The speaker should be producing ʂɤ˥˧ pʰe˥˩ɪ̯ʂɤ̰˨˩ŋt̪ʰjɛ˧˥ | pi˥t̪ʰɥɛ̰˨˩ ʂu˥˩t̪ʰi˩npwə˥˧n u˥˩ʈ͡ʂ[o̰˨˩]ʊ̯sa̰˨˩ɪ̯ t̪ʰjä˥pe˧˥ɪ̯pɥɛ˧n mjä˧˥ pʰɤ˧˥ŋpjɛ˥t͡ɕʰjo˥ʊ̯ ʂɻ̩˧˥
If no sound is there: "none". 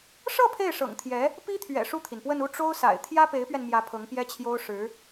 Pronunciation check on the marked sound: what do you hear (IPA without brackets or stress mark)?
o˥